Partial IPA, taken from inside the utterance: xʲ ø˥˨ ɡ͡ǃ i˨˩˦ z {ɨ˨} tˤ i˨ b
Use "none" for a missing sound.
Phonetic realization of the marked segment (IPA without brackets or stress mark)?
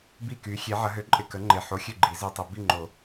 i˨